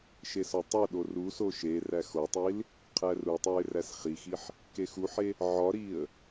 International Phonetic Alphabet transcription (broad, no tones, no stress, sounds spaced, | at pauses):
ʃ e s ɒ tˤ o ɗ o r u s o ʃ e r æ x o tˤ i l | qʰ æ r u tˤ o ɪ̯ r æ s χ i x i ħ | k e x u ħ e | ʕ ɒ ɾ i ə̯